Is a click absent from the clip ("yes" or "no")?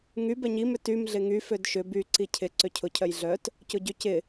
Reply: no